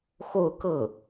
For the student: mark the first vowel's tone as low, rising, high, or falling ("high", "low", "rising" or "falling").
falling